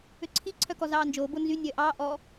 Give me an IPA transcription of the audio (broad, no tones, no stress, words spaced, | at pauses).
øǀʰi ǀʰœkɔzɑːnd͡ʒoː bonzy nʲœːʔɑː ʔɔ